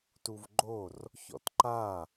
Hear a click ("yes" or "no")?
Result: yes